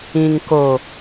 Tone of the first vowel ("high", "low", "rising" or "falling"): low